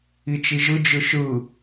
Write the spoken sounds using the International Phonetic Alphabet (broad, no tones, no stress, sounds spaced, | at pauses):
i t͡ʃ i ʒ ɯ d͡ʒ ɯ ʃ ɯ